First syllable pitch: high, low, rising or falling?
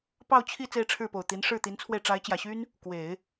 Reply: falling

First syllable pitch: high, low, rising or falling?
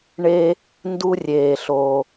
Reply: high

